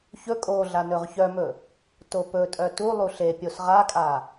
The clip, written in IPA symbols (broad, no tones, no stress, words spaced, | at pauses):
çɵ kʼoɮa nɵʁçœmɵ | topɵtʼœ tu lˠuɬepʲos ʁakʼa